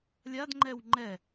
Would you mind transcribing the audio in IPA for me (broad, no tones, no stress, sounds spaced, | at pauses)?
lʲ a d ŋ͡ǃ ɛ w ŋ͡ǃ ɛ